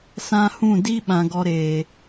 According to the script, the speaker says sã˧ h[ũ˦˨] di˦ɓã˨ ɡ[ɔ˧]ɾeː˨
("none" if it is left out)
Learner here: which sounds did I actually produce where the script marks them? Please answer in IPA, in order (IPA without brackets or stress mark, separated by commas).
ũ˦˨, ɔ˧